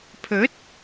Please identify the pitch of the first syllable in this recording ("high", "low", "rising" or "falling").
rising